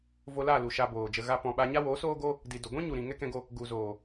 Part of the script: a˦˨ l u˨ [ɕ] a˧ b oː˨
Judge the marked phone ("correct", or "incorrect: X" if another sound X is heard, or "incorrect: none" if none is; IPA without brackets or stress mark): incorrect: ʃ